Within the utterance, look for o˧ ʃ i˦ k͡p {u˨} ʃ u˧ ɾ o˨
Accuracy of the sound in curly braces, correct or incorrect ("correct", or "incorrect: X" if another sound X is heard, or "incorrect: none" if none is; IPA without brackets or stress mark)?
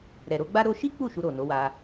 incorrect: u˦˨